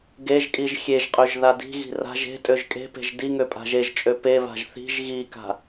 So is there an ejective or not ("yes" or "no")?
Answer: yes